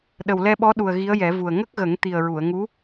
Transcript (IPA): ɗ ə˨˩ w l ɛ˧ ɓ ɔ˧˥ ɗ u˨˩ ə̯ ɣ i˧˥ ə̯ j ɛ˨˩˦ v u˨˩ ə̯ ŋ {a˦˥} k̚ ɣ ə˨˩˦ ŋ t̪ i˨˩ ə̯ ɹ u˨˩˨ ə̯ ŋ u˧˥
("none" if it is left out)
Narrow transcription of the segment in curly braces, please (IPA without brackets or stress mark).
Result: ə˦˥